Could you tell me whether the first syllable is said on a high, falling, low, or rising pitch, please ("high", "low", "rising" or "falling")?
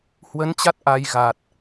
rising